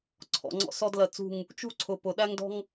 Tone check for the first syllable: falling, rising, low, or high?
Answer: low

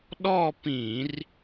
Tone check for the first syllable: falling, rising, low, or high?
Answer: falling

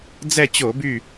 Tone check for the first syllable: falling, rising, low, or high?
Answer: falling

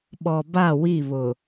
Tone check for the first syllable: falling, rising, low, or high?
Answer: low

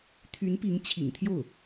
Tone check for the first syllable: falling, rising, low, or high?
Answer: rising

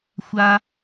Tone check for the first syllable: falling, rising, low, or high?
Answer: high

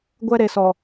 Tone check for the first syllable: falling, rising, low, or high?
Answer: high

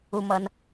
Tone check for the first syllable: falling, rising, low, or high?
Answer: low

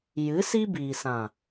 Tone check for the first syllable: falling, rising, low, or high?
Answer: rising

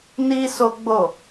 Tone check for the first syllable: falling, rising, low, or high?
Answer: high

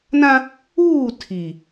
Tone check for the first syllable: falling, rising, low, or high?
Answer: high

